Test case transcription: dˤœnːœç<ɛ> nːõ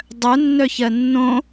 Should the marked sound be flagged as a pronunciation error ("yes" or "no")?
yes